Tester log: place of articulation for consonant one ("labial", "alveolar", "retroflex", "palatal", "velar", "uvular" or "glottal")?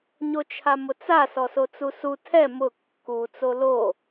palatal